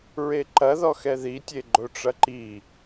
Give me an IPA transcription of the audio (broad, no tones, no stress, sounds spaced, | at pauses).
ɹ e ǃ ɐ ð ɔ x ɛ ð i tʲ e ɡ͡ǃ o ʈ͡ʂ ɐ ǃ i